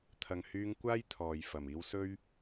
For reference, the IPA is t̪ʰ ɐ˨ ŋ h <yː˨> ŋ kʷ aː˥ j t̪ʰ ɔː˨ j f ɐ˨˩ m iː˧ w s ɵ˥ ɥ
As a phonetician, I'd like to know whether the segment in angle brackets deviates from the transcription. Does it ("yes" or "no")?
yes